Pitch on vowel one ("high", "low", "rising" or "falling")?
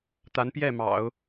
rising